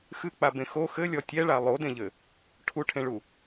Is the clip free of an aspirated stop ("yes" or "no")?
no